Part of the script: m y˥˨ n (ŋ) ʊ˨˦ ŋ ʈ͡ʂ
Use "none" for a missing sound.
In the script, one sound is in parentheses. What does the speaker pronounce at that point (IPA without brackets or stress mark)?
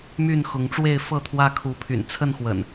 x